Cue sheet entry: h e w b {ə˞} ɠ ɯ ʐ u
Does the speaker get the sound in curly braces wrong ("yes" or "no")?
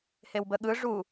yes